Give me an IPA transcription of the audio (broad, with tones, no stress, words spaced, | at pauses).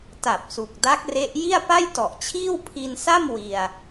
ta˨˩p̚su˨˩k̚ da˦˥k̚re˦˥ʔ ji˥˩a̯pa˥˩jtɔ˨˩ʔt͡ɕʰiː˥˩w pʰi˧nsa˥˩m wi˧a̯